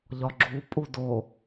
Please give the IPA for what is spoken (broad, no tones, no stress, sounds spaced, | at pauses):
ʎ ɒ ɡ͡ǁ u pʼ u d o